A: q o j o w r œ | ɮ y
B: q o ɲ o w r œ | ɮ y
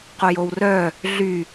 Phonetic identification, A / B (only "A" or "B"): A